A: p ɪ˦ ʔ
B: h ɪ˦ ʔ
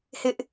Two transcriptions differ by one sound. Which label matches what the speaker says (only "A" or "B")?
B